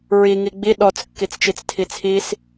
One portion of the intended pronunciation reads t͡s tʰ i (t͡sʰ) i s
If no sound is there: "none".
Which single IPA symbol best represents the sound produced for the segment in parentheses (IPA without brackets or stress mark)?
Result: t͡sʰ